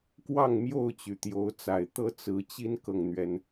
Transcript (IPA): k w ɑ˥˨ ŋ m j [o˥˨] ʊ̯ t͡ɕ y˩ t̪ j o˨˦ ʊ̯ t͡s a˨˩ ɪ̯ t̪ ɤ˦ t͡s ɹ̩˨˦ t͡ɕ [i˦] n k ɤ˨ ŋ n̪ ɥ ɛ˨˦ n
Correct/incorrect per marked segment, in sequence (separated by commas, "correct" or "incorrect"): correct, correct